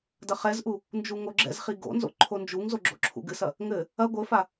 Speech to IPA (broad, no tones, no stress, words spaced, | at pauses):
dɐχɛzʔu | nd͡ʒuŋoɡ͡ǁɛ̰zχi ɡo̰nzo̰ ǃʰond͡ʒuŋzo ɡ͡ǁo̰ǁʰṵɡɨsɐ | ŋɘ | ɐ ɡʷɘfa